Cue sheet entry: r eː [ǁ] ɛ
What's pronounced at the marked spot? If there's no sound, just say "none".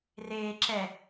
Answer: ǁ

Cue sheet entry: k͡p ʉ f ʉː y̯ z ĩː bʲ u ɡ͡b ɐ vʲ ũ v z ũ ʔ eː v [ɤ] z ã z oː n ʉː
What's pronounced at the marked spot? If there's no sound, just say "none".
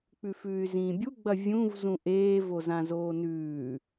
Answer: o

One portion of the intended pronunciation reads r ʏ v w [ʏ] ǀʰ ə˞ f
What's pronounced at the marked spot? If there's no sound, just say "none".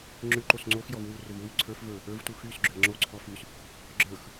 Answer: y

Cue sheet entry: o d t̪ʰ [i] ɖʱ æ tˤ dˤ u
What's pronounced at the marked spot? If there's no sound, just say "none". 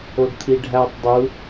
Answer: i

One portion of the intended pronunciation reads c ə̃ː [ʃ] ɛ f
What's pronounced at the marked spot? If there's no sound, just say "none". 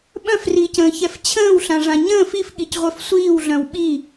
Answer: ç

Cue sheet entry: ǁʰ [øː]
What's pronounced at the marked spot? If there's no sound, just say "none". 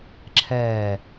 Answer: ɛː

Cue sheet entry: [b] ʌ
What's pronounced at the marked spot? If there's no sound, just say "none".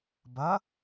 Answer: b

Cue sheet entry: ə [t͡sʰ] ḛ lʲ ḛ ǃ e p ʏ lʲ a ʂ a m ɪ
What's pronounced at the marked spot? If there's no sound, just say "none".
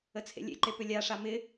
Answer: t͡sʰ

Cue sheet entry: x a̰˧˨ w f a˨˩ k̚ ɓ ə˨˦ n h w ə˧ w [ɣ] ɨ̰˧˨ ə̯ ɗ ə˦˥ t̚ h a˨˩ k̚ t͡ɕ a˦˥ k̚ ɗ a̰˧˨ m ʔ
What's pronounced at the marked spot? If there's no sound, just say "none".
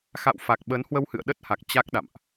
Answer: h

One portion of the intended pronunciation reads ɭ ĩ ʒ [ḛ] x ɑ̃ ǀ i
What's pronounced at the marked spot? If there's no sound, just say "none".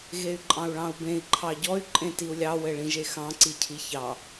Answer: e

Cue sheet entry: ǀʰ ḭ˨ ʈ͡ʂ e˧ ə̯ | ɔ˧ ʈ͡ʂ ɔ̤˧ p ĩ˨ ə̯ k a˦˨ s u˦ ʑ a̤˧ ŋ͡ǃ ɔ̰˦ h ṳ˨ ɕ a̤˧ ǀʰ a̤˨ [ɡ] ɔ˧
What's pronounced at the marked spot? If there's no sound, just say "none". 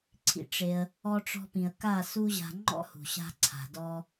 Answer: d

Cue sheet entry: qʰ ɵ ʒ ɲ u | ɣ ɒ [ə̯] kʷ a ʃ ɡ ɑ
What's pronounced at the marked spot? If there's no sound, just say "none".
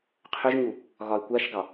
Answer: ɪ̯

